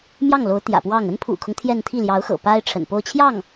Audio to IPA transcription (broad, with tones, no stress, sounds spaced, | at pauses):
m j ɑ˥˩ ŋ l o˧˥ ʊ̯ t̪ j ä̰˨˩ p w ɑ˥˩ ŋ ə˥ n pʰ ṵ˨˩ kʰ ʊ˦ ŋ t̪ʰ j ɛ˥˧ n t̪ʰ i˥˩ l j ɑ˧˥ ʊ̯ x ɤ̰˨˩ p a˥ ɪ̯ ʈ͡ʂʰ ə̰˨˩ n p o˥˧ ʊ̯ t͡ɕʰ j ɑ˥˩ ŋ